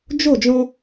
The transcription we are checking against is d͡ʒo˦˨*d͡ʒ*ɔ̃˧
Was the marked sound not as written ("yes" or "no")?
no